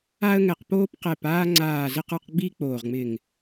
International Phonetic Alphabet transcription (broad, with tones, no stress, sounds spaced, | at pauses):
a˦ ə̯ ŋ ɛ˧˩ q p oː˦ p q ɛ˧˩ p aː˦ ŋ͡ǀ aː˧˩ z ɪ˦ q ə˞˦ q ɡ͡b i˦ k͡p oː˧˩ ʁ ŋ͡m ɪː˧˩ ŋ